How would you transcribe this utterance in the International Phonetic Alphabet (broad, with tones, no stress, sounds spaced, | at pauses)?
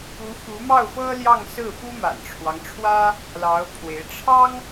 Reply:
u˧˥ f u˧˥ m ɑ˥˩ ʊ̯ f ɤ˥ l j ɑ˥˧ ŋ s ɹ̩˥˩ f u˥ m a̰˨˩ n ʈ͡ʂʰ w ɑ˦ ŋ ʈ͡ʂʰ w ä˥ | l ɑ˧˥ ʊ̯ pʰ w e˧˥ ɪ̯ ʈ͡ʂʰ ɑ˥ ŋ